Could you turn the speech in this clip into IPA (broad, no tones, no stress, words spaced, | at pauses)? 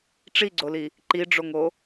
ʈ͡ʂiɡ͡ǀoli | ǃiɖ͡ʐoŋo